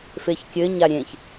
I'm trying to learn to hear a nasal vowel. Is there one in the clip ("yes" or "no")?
yes